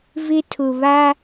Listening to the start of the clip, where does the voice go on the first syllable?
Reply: high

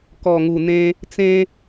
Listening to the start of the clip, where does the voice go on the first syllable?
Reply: low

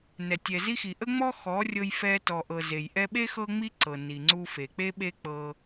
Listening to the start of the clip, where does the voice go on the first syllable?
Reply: low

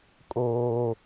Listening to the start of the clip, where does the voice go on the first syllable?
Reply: high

